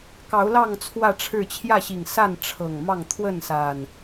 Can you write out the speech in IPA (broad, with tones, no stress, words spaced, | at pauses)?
kɑ˨˦ʊ̯lɑ˥˨ŋ t͡sʰwä˥˨ʈ͡ʂʰɻ̩˥˨ t͡ɕʰjä˥˨ɕi˨˩ŋsa˥˨n ʈ͡ʂʰɤ˨˩ŋmɑ˥˨ŋ t̪ʰwə˥˨nsa˨˩n